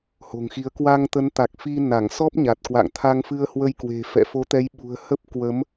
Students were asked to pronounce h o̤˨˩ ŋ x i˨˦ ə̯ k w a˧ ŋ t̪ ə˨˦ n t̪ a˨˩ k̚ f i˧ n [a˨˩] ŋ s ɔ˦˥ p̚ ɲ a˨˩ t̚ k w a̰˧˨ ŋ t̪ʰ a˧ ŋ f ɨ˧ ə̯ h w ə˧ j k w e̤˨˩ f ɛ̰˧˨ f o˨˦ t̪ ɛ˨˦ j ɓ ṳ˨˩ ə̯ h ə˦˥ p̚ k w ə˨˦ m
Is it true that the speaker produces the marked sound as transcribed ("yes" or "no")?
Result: no